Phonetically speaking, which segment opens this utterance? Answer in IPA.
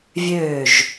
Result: vʲ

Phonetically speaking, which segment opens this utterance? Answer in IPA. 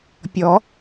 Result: pʲ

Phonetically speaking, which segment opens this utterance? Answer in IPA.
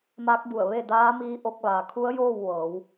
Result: m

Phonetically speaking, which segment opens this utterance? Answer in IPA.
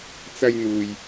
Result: t͡s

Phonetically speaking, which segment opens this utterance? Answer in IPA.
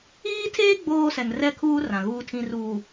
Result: iː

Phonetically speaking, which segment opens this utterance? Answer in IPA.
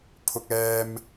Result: pʰ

